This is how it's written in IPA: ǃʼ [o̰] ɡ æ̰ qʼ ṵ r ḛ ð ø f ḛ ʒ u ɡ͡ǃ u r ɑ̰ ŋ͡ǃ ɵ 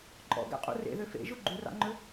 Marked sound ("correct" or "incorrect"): incorrect